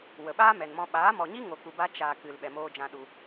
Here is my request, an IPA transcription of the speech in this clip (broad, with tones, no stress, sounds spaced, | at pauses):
w ə˨ ɓ aː˦ m ɛ˨ n m ɔ̃˧ ɓ aː˨˦ m ɔ˨ ɲ i˦ ŋ o˨ k u˧ b a˦ t͡ʃ aː˧ k ɨ˨ l ɓ ɛ˨ m oː˧ d͡ʒ ã˧ ɗ u˧